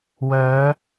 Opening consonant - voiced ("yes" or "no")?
yes